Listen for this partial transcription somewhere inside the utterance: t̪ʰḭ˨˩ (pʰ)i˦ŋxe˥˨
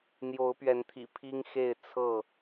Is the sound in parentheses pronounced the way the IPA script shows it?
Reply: yes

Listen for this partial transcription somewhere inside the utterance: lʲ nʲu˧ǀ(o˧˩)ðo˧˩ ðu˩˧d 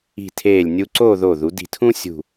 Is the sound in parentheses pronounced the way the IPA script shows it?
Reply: no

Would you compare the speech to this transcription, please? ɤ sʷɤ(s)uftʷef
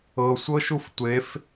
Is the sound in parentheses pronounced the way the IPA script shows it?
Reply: no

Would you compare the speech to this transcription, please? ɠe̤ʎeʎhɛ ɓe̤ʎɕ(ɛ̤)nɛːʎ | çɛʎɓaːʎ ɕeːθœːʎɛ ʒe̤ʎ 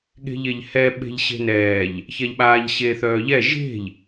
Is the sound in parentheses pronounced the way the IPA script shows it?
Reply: no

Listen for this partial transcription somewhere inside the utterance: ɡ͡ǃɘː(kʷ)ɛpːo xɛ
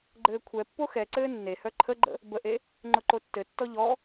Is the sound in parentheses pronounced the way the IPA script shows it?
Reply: no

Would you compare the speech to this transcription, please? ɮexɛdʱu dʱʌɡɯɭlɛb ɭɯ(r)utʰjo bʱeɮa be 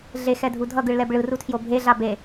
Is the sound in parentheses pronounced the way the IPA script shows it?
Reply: yes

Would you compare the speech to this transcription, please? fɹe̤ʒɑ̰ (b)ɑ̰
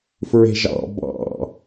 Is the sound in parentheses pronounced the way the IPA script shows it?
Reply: yes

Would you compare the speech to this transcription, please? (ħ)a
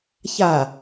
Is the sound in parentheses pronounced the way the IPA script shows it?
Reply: no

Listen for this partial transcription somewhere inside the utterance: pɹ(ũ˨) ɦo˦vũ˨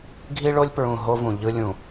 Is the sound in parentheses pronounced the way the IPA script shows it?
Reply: yes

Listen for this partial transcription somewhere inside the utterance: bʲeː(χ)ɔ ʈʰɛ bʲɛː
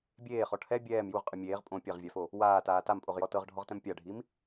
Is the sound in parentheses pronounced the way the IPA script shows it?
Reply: yes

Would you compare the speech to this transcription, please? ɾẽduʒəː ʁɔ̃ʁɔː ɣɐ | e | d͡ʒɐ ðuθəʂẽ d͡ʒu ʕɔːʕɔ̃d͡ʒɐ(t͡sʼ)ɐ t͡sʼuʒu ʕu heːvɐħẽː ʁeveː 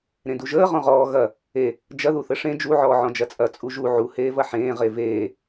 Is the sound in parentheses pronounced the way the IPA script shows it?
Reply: yes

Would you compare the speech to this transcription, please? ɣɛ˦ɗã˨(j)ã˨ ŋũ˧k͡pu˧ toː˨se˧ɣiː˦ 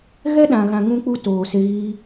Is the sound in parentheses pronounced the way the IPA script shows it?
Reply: no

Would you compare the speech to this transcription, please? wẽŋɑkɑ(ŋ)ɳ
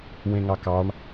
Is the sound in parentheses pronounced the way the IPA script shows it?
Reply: no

